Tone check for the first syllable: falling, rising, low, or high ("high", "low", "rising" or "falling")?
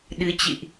rising